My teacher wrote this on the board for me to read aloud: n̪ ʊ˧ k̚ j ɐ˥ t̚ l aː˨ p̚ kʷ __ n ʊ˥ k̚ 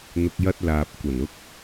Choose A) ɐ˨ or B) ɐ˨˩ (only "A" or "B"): B